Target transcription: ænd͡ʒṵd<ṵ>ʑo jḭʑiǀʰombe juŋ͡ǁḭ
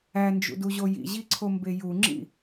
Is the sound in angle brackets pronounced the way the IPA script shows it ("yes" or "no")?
no